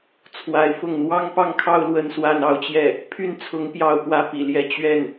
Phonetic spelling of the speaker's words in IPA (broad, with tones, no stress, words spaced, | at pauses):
t͡sʰwa˧˥ɪ̯ fʊ˥˩ŋ n̪wɑ˥ŋpɑ˥˧ŋkʰɑ˥˧ʊ̯ lwə˥˧nswa˥˧n ɑ˥˧ʊ̯t͡ɕjɛ˥˩ | pʰy˥˩nt͡sʰʊ˧˥ŋ pjɑ˥ʊ̯pwä˥ pḭ˨˩ljɛ˥˧ t͡ɕɥɛ˥˩n